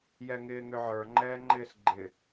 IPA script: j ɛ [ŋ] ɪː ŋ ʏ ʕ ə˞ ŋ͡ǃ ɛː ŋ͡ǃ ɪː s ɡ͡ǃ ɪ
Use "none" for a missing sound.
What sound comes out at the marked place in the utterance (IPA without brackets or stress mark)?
ŋ